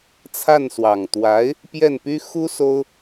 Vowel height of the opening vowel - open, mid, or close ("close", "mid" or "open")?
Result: open